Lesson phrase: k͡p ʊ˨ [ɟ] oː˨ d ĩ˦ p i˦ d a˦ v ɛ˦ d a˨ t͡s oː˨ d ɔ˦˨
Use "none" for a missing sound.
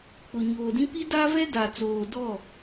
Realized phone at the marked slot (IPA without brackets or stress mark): ɲ